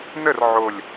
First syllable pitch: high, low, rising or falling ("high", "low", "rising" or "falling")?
falling